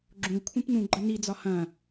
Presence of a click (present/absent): present